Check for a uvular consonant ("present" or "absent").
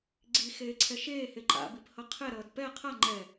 present